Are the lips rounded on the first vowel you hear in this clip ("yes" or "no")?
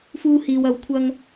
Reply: yes